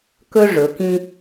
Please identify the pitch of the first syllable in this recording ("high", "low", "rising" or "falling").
high